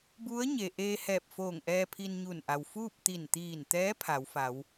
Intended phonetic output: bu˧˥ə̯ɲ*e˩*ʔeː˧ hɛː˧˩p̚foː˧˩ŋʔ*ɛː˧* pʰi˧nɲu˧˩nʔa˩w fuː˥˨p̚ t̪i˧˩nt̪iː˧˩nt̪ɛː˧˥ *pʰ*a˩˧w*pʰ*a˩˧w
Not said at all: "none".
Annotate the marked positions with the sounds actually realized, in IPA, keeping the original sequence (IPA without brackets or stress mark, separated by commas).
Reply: e˩, ɛː˧, pʰ, f